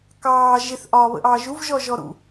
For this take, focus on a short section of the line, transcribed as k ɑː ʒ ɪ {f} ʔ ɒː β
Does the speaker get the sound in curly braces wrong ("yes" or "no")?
yes